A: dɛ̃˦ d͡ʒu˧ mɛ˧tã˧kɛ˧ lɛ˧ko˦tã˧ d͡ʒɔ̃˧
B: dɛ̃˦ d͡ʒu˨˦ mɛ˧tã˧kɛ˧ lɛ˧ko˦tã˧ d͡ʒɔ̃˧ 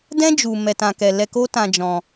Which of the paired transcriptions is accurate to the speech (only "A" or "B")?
A